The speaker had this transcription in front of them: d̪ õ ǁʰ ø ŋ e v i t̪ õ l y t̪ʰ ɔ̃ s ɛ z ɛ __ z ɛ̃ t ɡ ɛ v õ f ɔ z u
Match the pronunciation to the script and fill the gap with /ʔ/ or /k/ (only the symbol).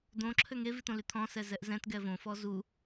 ʔ